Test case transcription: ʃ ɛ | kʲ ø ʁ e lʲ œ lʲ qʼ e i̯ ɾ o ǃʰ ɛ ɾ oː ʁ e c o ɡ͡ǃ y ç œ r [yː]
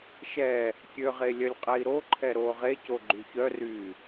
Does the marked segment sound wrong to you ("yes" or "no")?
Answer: no